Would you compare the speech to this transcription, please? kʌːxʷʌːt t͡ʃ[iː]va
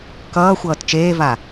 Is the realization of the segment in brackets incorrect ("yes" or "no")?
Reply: yes